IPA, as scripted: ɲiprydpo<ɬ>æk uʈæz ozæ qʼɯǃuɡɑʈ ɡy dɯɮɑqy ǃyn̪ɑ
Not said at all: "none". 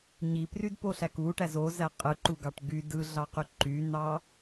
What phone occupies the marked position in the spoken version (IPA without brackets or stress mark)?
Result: ɬ